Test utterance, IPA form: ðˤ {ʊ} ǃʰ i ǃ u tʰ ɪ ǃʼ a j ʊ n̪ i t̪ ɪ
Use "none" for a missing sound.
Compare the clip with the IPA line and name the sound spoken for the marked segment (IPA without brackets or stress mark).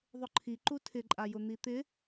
ʊ